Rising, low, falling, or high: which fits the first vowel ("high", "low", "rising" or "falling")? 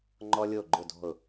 high